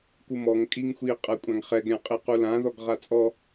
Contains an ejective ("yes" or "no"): yes